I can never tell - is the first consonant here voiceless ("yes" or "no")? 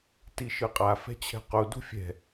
yes